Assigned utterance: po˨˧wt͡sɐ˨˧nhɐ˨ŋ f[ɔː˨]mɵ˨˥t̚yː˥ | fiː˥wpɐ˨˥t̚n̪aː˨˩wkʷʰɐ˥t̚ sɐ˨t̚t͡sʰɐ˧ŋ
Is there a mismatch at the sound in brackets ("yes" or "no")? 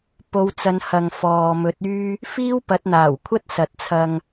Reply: no